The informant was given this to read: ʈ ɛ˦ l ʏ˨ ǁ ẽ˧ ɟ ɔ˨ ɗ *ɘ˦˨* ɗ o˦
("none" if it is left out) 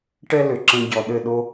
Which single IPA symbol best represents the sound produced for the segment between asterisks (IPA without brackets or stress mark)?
ɘ˦˨